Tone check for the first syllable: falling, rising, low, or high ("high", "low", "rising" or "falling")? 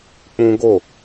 high